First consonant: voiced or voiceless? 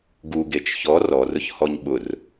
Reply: voiced